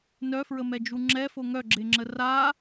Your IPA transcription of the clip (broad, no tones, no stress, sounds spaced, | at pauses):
n œ f ɹ ə m ɛ d͡ʒ u ŋ͡ǁ ɛ f o ŋ œ ɡ͡ǁ e ŋ͡ǁ ə r a